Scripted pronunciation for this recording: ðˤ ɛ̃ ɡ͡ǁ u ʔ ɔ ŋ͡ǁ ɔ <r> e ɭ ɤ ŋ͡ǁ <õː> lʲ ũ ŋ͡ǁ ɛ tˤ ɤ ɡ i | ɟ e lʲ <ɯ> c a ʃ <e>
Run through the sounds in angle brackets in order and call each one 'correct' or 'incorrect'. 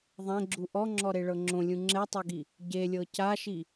incorrect, incorrect, incorrect, incorrect

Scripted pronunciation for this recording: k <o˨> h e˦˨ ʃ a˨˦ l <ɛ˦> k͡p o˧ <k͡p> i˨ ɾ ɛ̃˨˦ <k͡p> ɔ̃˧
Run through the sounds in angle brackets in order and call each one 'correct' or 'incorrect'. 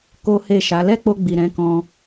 incorrect, correct, incorrect, incorrect

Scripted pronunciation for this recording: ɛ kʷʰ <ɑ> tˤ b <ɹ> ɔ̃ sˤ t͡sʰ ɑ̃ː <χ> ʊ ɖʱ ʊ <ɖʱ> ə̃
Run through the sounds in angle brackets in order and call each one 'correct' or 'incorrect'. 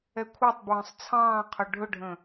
correct, correct, incorrect, correct

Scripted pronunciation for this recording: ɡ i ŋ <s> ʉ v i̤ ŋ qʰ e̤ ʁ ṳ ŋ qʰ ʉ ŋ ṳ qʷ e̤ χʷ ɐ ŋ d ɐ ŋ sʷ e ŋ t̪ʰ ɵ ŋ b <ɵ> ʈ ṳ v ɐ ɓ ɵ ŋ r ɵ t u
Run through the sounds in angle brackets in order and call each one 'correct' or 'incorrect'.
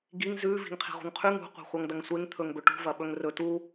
incorrect, correct

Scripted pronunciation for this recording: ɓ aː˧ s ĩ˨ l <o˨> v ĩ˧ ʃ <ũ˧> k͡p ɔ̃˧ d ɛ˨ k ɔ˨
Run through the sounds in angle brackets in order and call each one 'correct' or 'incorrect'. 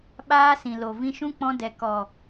correct, incorrect

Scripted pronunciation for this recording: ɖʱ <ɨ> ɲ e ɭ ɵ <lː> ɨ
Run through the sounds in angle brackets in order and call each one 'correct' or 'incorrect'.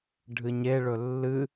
correct, correct

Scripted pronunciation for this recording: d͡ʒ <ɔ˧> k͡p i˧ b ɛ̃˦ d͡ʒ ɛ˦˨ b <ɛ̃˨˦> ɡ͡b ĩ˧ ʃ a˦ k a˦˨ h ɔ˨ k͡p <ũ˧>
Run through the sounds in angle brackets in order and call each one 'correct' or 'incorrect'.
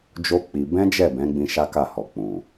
incorrect, correct, incorrect

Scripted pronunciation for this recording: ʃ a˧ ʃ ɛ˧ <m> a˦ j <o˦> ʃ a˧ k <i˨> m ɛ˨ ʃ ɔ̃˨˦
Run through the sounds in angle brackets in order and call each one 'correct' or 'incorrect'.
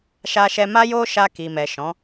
correct, correct, correct

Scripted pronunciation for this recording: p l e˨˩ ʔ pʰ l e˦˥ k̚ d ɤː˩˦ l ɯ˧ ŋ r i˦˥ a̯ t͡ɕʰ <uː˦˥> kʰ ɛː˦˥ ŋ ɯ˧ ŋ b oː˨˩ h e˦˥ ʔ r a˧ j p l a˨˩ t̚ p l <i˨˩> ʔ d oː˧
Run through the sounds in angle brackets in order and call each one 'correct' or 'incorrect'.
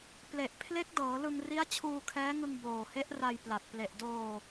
incorrect, incorrect

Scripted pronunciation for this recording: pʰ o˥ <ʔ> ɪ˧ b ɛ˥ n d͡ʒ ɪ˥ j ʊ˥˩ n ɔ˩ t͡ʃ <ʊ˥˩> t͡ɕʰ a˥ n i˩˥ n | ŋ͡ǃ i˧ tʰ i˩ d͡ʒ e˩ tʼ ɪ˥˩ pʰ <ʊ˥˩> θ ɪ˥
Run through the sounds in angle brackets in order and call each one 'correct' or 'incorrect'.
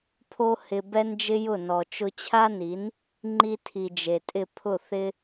incorrect, incorrect, correct

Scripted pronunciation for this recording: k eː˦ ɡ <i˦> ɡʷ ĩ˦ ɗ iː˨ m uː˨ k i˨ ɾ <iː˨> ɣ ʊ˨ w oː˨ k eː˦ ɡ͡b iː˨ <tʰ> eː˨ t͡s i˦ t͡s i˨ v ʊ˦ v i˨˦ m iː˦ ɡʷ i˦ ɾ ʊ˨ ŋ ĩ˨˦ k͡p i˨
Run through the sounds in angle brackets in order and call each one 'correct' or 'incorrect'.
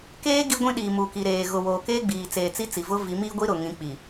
correct, incorrect, incorrect

